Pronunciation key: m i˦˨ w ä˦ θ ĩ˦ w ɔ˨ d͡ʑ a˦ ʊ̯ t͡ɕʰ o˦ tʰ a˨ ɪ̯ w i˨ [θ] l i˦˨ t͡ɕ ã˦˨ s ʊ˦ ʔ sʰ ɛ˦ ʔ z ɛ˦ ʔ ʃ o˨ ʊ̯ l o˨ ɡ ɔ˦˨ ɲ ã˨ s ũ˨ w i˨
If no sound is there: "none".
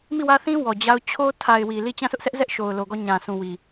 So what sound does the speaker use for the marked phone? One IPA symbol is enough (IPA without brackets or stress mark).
none